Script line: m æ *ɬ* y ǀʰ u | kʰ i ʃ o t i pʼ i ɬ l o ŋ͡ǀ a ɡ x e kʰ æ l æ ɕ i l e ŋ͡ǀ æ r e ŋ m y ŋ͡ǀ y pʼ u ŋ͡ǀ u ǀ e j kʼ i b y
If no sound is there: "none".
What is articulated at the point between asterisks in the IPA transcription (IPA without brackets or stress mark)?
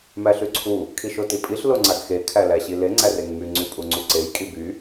ɬ